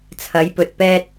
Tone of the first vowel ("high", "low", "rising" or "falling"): rising